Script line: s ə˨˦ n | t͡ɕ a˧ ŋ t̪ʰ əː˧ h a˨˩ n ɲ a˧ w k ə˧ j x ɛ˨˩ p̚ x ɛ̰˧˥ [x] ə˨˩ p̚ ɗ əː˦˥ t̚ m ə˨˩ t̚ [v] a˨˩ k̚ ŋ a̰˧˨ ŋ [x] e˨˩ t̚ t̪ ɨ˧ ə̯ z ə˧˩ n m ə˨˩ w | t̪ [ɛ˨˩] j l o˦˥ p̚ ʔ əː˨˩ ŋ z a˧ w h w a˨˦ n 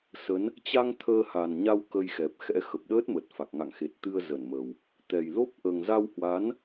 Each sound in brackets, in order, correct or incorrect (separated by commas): correct, incorrect, correct, correct